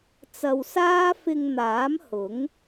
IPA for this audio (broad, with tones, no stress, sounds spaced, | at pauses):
t͡s ɐ˧ w s aː˥ f ɪ˧ ŋ n̪ aː˨˥ m h ʊ˨˥ ŋ